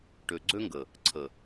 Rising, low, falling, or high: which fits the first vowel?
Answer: low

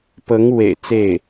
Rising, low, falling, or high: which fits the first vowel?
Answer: rising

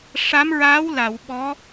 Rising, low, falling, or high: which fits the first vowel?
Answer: rising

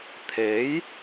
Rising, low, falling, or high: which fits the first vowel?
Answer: rising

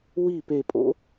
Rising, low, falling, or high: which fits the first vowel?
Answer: falling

